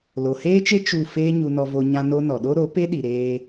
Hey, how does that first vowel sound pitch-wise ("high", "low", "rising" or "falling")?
low